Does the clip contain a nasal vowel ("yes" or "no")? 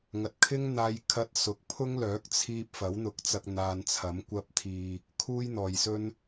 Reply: no